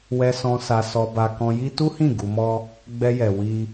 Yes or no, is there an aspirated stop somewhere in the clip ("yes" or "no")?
no